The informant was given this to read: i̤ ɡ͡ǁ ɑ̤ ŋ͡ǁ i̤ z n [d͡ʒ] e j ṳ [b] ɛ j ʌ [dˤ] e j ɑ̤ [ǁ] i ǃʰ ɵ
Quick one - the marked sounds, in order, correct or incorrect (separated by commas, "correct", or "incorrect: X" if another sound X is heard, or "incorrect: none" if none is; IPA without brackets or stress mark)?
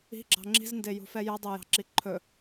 incorrect: d, incorrect: f, correct, correct